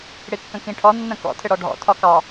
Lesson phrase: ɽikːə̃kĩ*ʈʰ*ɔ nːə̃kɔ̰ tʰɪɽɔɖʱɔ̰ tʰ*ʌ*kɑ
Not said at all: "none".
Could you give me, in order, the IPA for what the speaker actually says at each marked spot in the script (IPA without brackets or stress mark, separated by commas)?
ʈʰ, ɒ